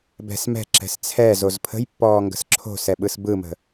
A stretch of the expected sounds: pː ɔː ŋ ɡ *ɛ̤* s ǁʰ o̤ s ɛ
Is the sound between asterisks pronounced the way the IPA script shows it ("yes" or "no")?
no